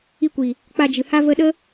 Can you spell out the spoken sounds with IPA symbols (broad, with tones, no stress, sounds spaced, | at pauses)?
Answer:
i˧ kʷ i˨ | k͡p a˧ d͡ʒ ɨ˨ h a˦ v ə˧ ɗ ə˦